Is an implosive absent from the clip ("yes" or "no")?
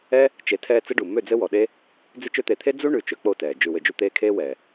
no